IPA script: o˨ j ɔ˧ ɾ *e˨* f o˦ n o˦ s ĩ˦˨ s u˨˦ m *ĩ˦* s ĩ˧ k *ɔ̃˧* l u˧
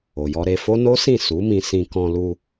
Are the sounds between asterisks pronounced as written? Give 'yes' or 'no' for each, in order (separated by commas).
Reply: no, no, yes